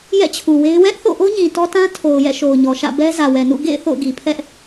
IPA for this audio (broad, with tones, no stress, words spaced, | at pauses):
jɛ̰˦˨t͡ɕʰu˨we˦ɪ̯ wɛ˦ʔθo̰˦˨ʔo˦ ɲĩ˨tɔ˦ tã˦ tʰo˨ʊ̯ jɛ̰˦˨ʃo˨ʊ̯ɲɔ˨ʃä̰˦˨ bɛ˦zä˨wɛ˨nṵ˦˨ ɡḛ˦˨ɪ̯ θo̰˦˨ʊ̯ɡi˨ pʰɛ˦ʔ